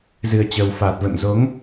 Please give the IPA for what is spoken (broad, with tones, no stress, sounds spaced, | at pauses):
z ɨ˨˩ ə̯ t͡ɕ əː˨˩ w f aː˨˩ t̚ v ə̰˧˨ n z o˨˦ ŋ